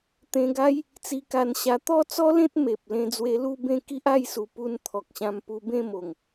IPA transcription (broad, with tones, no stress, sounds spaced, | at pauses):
t̪ ẽ˧ ɡ a˦ j | t͡s i˧ k a˧ n ɕ a˧ t̪ ɔ˥˧ t͡s ɔ˦ l ẽ˦ t̚ m e˨ p̚ l ẽ˧ d͡z w e˧ l u˥˧ b ẽ˥˧ k i˦ ʔ a˥˧ j s u˨˩ p u˧ n t̪ʰ ɔ˨ k̚ ɕ ã˧ m p u˧ b ẽ˥˧ m o˨˩ ŋ